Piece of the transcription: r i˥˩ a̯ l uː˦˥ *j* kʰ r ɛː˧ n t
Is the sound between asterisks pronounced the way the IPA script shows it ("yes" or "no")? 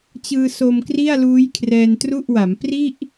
yes